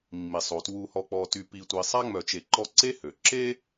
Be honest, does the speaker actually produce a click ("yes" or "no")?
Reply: yes